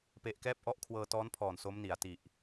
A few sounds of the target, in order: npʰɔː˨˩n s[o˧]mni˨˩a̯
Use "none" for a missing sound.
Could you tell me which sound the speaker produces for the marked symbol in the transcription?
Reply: o˦˥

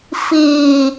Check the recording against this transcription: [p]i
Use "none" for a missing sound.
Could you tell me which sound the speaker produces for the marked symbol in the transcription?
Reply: f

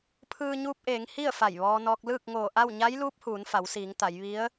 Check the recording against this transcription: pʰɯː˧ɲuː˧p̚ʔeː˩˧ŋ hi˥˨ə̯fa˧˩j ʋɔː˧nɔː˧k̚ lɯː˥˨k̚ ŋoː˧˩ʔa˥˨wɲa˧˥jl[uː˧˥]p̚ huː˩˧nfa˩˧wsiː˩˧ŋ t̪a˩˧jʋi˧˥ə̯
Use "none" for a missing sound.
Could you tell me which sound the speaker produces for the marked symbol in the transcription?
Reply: uː˧˥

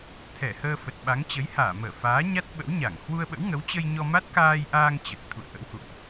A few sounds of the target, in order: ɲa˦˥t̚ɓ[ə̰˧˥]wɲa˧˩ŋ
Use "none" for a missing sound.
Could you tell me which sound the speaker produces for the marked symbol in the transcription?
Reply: ə̰˧˥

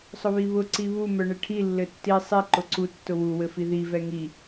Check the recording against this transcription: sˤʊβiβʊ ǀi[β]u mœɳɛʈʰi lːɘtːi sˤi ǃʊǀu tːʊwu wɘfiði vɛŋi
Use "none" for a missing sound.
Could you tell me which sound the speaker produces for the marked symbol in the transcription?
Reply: β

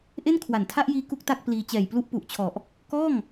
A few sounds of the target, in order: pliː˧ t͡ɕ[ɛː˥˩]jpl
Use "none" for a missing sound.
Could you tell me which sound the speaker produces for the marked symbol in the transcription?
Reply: ɛː˨˩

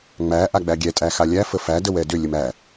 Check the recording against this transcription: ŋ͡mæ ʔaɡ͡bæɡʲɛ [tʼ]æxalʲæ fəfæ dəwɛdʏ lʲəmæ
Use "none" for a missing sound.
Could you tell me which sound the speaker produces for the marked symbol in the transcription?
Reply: tʼ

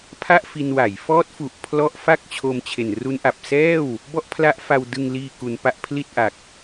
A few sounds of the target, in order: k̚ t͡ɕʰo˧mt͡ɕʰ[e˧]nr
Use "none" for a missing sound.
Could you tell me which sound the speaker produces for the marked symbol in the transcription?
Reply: e˨˩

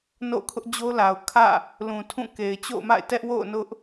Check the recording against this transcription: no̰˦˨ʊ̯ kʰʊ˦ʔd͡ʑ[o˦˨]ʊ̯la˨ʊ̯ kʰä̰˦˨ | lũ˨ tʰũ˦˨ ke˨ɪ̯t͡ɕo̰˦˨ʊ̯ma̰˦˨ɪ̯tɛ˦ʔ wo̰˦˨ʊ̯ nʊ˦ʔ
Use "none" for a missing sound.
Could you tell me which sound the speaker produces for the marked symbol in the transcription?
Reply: o˦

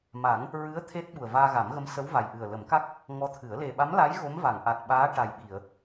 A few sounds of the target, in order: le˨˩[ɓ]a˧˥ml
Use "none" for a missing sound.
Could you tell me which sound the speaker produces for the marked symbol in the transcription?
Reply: ɓ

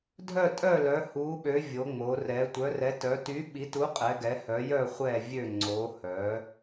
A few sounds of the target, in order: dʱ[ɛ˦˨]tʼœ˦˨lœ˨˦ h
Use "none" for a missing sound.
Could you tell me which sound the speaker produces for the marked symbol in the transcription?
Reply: œ˦˨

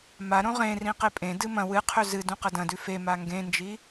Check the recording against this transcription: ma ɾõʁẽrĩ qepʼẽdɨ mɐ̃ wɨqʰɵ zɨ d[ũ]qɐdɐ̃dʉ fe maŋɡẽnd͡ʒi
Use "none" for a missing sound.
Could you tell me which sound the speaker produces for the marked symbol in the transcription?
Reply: ũ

